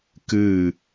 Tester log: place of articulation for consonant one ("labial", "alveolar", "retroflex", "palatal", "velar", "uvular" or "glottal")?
velar